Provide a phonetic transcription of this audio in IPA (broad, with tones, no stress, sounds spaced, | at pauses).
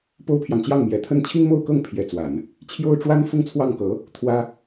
p o˥ ʊ̯ pʰ j ɑ˨ ŋ t͡ɕ j ɑ˥˩ ŋ m j ɛ˨˩ t̪ʰ ə˥˩ n t͡ɕʰ i˥ ŋ m o˥˧ ʊ̯ k ɤ˥˩ ŋ pʰ j ɛ˧˥ t͡s w a˨˩˦ n | t͡ɕʰ j o˥ ʊ̯ ʈ͡ʂ w a˥ n f ʊ˥˧ ŋ t͡sʰ w ɑ˥˩ ŋ k ɤ˧˥ | t̪ʰ w ä˥